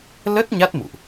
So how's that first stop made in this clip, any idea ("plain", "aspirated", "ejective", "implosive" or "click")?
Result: plain